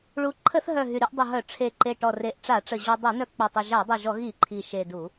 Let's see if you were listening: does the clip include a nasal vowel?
no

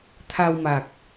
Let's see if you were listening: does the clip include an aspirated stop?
yes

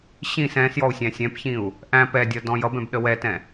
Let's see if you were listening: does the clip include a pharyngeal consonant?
no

